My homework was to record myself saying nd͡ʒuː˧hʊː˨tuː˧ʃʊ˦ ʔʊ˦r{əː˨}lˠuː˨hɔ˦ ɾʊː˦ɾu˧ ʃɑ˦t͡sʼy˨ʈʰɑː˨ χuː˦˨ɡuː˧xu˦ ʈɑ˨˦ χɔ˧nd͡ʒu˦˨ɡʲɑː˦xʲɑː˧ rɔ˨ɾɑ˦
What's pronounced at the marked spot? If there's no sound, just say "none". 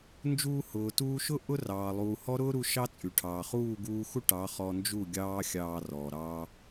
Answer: ɑː˨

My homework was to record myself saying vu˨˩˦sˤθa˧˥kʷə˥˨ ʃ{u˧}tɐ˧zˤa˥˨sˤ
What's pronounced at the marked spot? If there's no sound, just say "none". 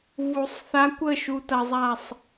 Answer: u˧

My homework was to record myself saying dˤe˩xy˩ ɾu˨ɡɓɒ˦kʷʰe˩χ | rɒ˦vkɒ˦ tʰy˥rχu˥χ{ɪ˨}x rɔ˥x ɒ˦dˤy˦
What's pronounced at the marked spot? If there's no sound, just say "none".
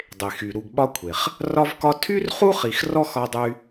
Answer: i˨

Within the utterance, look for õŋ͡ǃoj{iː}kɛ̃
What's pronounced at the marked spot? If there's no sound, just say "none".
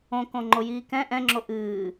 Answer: iː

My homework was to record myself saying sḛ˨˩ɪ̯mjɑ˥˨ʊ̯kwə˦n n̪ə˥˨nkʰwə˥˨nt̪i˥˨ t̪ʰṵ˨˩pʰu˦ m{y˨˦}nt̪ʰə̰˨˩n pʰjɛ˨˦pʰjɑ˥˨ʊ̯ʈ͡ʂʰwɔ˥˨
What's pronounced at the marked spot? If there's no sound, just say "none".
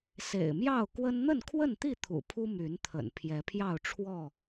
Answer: y˨˦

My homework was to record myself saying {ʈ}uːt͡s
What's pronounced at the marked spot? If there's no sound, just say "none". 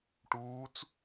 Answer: ʈ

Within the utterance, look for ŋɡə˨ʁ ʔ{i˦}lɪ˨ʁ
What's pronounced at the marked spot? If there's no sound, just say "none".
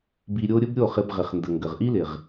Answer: i˦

